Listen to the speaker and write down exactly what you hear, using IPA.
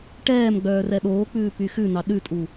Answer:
ʈ ɛː m ɡ͡b œː r ɛ ɗ oː k͡p ʉː p y x ʉ n ɑ ɗ ʉ tʼ u

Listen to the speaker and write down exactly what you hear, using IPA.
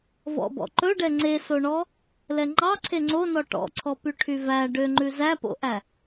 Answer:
v ɔ̰ b ɔ̰ ǃ ɵ ɖ ɛ ŋ͡ǀ e s o ɳ ɔ | l ɛ ŋ͡ǃ ɑ ǀʰ e ŋ͡ǀ o n ɔ ʈ ɔ̰ ǀʰ ɔ p y ʈʰ y v æ ɖ ø ŋ͡ǃ ʉ z æ p o̰ ʔ æ

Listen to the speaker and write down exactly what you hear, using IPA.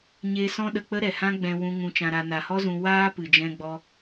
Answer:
ɲ eː˧ s ɔ̃˦ ɗ ə˧ k͡p ə˦ ɾ ɛ˨ h ã˦ ɡ͡b ɛ̃˧ w ũ˧ ŋ ũ˧ t͡ʃ ã˧ ɾ a˧ n a˨ h ɔ˦ z ũ˧ w aː˦ p ɨ˨ d͡ʒ ɛ̃˧ ɡ͡b ɔ˧

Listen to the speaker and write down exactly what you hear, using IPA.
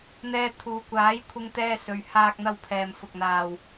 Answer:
n̪ ɛː˧ t̪ʰ uː˨ kʷ aː˨˥ j kʷʰ ɪ˧ ŋ t̪ ɛː˧ s ɵ˨ ɥ h aː˥ k̚ n̪ ɐ˥ w pʰ ɛː˨ m f ʊ˧ k̚ n̪ aː˧ w

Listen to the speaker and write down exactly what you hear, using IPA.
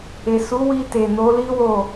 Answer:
e˨ s u˨˦ w i˧ t e˨ n o˨˦ l i˦ w o˦˨

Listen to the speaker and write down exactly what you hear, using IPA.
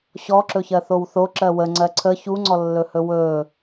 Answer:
ɕ ɔ ǁ ɵ ç ɜ θ o w θ o ǁ ɜ w ə ŋ͡ǀ ɜ ǀʰ ə ç u ŋ͡ǀ ɔ lː ɵ h ɵ w ɵ

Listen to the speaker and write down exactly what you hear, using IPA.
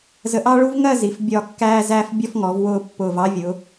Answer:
z ə˧˩ ʔ ɑ˥ ɭ u˥ v ŋ ɜ˥˧ z i˩˧ f bʲ ɒ˥˧ kː æː˥ z æː˥ f bʲ ɔ˥ f ŋ ɔ˩˧ v w ʊː˥˧ pː ʊː˧˩ v ɑ˥ vʲ ʊ˩˧

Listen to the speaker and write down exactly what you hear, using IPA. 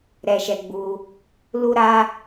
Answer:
ɾ ɛ˧ ʃ ɛ˧ ɡ͡b u˧ | l u˦ ɾ a˦

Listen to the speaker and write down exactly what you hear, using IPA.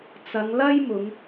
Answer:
t͡s ɐ˨˧ ŋ l ɐ˥ j m ʊ˨˧ ŋ

